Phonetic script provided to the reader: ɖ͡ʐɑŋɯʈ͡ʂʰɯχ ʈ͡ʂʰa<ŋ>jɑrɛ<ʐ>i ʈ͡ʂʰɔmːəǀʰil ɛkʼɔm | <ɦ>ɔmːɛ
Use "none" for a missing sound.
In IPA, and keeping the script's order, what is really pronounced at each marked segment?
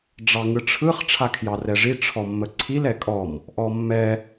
kʰ, ʐ, ʔ

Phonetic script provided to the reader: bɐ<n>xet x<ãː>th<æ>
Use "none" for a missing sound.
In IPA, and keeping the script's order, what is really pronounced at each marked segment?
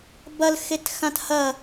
l, ã, ɐ

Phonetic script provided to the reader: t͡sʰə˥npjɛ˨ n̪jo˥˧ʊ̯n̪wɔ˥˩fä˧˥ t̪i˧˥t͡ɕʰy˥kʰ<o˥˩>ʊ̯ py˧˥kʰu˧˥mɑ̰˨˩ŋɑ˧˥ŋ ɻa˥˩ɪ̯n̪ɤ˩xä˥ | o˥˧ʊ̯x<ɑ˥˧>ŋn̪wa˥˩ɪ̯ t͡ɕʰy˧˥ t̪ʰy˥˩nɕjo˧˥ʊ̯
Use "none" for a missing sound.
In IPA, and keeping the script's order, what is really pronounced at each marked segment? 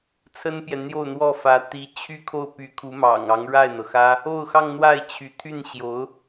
o˥˩, ɑ˥˧

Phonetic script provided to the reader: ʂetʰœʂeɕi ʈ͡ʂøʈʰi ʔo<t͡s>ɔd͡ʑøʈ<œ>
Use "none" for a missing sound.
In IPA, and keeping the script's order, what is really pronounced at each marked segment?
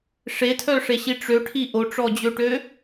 ʈ͡ʂ, ø

